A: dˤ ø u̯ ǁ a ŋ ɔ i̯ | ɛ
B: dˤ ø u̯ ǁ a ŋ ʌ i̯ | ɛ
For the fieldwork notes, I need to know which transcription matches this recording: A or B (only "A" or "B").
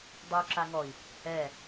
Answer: A